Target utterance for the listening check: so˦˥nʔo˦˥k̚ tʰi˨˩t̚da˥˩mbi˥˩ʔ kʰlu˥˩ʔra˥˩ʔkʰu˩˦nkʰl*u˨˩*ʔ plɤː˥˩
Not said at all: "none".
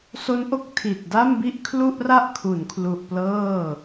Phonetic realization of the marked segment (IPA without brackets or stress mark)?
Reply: u˨˩